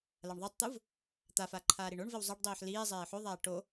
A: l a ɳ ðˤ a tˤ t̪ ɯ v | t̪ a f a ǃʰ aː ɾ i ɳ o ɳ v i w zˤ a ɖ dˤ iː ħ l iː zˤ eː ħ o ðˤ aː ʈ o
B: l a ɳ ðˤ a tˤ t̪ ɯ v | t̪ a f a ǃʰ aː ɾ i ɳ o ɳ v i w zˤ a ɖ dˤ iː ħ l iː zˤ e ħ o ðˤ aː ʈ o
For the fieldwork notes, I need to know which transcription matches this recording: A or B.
A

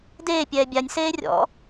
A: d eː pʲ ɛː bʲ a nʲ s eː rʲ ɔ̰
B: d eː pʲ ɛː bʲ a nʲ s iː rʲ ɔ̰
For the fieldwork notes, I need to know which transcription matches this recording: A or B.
A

